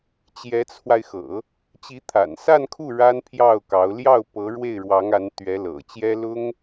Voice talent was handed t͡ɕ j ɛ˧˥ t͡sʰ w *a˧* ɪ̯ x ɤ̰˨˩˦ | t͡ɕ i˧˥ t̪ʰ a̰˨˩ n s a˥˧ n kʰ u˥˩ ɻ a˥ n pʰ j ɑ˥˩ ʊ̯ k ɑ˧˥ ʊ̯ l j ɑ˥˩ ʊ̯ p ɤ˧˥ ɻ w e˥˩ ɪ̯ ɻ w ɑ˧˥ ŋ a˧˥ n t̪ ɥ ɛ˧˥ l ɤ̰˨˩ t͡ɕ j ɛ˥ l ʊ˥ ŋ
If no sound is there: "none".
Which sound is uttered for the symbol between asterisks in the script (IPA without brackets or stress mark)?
a˧